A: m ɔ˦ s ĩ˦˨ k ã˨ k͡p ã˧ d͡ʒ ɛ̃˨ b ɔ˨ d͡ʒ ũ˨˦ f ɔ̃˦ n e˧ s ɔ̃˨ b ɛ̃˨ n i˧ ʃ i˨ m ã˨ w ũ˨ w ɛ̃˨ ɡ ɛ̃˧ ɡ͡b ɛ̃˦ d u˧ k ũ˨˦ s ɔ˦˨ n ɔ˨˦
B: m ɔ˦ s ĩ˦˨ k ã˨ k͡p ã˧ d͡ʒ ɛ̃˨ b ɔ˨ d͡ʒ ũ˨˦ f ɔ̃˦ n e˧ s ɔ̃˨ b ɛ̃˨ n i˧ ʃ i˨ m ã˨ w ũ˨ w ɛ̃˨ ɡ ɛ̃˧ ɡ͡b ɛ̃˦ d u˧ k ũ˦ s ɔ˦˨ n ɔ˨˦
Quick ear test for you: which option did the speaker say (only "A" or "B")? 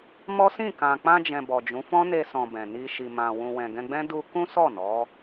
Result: B